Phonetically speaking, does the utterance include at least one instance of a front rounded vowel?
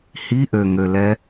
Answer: yes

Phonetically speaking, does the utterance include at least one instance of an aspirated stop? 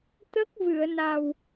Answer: no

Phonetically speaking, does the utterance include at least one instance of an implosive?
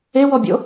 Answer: no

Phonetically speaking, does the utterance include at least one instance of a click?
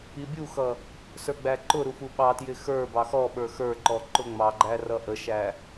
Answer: yes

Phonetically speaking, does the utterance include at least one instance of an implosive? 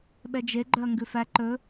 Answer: yes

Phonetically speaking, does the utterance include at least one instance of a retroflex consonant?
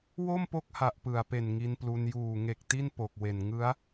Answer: no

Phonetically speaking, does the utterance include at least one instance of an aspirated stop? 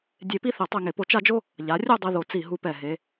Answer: no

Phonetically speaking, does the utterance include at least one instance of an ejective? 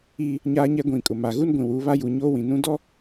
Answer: yes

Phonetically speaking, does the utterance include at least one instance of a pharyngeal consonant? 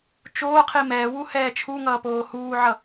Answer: yes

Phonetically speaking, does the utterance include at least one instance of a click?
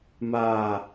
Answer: no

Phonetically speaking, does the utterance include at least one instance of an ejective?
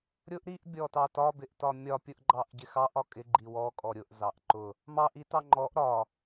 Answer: yes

